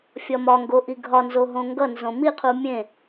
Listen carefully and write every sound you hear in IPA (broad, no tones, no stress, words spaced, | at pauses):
fʲɒmɒŋɡo ʔiɡʱɒnzoɦõ ŋɡʌnzõ miqʰu mʲẽ